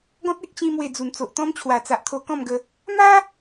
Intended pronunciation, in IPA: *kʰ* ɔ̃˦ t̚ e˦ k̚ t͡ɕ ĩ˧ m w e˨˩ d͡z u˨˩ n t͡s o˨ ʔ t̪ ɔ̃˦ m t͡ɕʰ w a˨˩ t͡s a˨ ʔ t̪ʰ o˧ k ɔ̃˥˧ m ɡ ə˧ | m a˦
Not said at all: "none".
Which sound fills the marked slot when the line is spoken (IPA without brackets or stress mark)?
ɡ